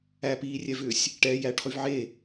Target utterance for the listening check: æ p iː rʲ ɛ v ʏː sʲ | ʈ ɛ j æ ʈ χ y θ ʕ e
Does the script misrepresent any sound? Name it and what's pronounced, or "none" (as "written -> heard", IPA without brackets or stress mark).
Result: θ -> v